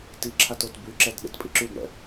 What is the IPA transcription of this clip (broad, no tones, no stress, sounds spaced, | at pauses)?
t i ǁʰ a t o t b y ǁ ɛ t ɗ ḛ t pʼ i ǁ y ɡ ɳ ɛ̰